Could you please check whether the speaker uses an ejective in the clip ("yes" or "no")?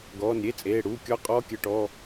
yes